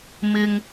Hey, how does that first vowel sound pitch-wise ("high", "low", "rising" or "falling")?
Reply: low